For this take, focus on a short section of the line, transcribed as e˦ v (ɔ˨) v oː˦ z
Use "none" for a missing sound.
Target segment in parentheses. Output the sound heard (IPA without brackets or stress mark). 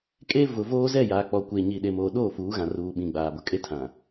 ʊ˨